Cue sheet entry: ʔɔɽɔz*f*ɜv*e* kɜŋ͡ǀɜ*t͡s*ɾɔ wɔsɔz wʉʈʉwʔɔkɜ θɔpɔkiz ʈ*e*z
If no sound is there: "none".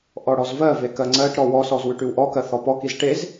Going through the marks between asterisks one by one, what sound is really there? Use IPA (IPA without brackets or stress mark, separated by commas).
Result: v, e, ʈ, e